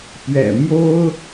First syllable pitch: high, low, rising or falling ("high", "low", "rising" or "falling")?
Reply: low